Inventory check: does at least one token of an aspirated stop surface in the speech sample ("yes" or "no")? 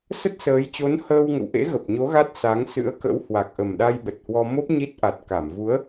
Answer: no